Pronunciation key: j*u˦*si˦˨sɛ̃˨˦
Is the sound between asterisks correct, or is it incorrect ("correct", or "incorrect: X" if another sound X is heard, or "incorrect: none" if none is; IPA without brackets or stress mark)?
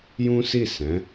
incorrect: ũ˦